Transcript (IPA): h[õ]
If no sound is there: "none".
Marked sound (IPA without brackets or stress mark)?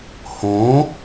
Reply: õ